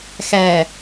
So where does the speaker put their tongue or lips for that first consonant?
velum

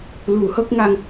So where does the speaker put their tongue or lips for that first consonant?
tongue tip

